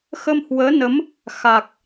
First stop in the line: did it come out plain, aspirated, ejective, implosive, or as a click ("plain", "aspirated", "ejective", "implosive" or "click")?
plain